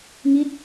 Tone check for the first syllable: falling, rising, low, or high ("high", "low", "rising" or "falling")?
falling